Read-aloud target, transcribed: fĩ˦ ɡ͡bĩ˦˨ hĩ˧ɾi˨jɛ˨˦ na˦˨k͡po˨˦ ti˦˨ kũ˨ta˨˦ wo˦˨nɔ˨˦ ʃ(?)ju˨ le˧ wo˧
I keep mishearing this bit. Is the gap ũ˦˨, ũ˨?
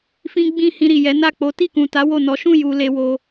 ũ˦˨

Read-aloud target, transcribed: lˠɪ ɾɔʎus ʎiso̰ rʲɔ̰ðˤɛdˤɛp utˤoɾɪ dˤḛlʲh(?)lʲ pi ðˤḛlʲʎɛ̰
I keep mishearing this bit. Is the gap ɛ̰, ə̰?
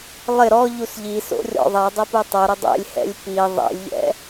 ɛ̰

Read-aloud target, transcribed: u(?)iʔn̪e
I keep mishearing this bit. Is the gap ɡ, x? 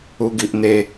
ɡ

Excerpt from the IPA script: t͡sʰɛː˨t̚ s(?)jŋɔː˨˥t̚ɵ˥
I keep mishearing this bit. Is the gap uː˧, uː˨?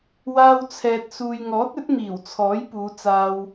uː˨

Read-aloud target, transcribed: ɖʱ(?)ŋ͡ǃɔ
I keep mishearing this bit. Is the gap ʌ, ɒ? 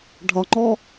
ɒ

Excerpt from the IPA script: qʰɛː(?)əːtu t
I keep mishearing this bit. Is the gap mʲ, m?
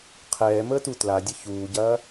m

